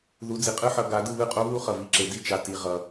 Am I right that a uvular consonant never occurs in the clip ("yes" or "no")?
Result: no